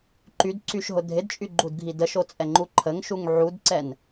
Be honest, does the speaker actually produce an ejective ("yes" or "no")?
yes